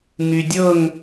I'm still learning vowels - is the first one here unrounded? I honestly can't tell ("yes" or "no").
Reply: no